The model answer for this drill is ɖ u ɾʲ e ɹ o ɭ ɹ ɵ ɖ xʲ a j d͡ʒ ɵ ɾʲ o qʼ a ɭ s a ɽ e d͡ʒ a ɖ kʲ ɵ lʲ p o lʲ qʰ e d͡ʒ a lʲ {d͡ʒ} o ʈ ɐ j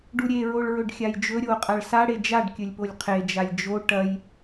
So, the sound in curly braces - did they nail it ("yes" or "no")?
yes